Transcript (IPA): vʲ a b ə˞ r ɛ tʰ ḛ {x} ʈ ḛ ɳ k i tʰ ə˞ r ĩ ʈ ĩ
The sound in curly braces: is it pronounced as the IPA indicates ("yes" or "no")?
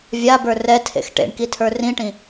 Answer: yes